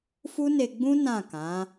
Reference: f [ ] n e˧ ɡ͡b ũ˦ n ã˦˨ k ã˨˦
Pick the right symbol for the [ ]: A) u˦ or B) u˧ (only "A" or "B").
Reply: A